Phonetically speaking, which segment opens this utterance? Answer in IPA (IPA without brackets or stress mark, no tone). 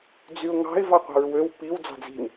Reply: d͡z